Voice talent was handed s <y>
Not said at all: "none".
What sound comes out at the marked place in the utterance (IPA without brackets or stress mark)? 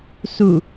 u